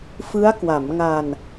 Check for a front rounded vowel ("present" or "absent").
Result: absent